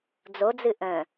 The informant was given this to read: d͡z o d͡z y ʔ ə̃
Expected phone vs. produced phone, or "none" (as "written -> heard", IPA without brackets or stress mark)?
y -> ɨ